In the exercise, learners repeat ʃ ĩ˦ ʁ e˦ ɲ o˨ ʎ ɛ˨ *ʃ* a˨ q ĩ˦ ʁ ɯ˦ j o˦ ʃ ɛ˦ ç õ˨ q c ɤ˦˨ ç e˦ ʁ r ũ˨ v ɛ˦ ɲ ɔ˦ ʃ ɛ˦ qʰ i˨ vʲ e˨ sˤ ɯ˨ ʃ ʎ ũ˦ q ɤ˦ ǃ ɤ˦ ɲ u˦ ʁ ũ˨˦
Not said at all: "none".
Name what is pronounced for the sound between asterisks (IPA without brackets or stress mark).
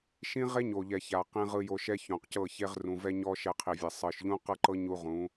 ç